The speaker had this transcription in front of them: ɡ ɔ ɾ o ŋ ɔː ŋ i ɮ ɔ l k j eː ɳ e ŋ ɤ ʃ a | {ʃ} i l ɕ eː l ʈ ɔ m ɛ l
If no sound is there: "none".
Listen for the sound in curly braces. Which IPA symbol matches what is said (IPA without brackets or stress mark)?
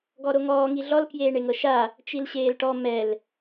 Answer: t͡ʃ